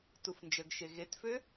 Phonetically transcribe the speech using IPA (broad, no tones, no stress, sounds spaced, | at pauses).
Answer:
t u f n d͡ʒ ə ɡ ʃ e ɣ e t f ø